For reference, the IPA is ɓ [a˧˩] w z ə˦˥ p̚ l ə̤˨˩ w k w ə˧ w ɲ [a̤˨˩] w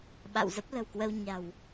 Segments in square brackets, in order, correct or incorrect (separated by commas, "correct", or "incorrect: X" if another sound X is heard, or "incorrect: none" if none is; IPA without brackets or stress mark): incorrect: a̰˧˨, correct